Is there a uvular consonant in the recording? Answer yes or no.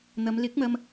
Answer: no